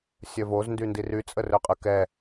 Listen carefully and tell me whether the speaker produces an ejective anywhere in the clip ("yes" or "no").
yes